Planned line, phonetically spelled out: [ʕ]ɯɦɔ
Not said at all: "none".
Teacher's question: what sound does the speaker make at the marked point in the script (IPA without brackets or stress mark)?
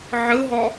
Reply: ʕ